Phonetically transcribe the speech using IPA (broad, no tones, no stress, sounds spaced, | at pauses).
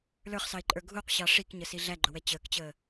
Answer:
l ə˞ χ s ɑ ɪ̯ ǃʼ ə˞ ɡʱ u q ɕ ɑ ʂ i k ɲ ə s i ɮ æ ɡ͡ǃ ʊ w ɛ t͡ɕ əː k t͡ɕ əː